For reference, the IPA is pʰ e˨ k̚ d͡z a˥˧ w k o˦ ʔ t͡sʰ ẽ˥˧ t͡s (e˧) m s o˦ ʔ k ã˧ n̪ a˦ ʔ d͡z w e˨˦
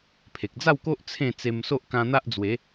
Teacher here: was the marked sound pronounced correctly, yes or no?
yes